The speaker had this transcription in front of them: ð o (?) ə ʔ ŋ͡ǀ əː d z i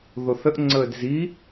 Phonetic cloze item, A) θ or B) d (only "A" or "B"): A